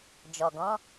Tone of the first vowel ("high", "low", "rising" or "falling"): low